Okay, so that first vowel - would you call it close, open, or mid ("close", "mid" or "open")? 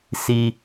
close